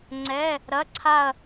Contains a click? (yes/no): yes